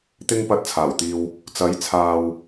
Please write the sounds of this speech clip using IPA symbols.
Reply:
t̪ ɪ˥ ŋ p ɐ˧ t̚ t͡sʰ aː˨˩ w t̪ iː˨ w | t͡s ɐ˨˥ j t͡sʰ aː˨ w

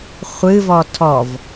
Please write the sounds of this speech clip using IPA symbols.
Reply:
χʷ ɨ v ɔ tʰ ɔ v

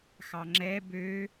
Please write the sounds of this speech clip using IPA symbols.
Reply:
x ɑ ŋ͡ǁ ɛ b ø

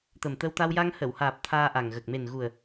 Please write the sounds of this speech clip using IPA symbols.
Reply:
t̪ ə˨˩ m t̪ ə˧ w t̪ a˧ w j a˧ ŋ h ə˨˩˨ w h aː˨˩ p̚ t̪ʰ aː˧ ʔ a˨˩ ŋ ɣ ə˨˩ k̚ m e˨˩ n ɣ u˨˩ ə̯

